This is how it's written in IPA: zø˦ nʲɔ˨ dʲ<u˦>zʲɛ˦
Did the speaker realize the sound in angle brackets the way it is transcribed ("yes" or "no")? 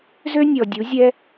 no